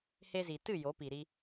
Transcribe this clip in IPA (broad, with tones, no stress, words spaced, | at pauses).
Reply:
he˧zi˨ tɨ˦˨ jo˨˦pi˨ɾi˧